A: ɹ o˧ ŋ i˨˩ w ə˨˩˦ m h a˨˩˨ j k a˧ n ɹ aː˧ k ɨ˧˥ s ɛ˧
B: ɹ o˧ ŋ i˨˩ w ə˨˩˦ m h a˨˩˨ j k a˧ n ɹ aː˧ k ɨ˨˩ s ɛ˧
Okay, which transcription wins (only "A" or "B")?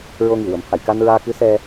A